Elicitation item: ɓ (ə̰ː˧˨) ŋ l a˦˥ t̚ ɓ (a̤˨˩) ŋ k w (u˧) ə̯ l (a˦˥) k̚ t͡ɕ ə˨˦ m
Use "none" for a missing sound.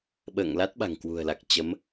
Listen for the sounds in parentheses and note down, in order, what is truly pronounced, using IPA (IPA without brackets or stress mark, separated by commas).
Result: ə̰ː˧˨, a̤˨˩, ṳ˨˩, a˨˩